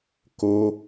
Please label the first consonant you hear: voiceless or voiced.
voiceless